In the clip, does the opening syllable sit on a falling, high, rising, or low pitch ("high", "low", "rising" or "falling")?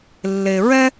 low